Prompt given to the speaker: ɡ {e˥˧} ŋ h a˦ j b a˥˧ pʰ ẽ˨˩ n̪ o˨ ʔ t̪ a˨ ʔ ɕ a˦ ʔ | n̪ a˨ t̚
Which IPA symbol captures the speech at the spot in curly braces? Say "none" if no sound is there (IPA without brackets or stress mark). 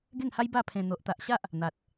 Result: e˥˧